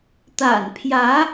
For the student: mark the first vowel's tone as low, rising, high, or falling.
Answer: low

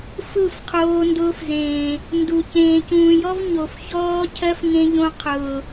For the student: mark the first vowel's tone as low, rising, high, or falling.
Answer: falling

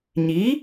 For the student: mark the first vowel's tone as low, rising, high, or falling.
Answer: rising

